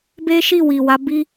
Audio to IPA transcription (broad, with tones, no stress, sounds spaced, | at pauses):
b e˦ ʃ i˦˨ w i˨ w a˨˦ b i˦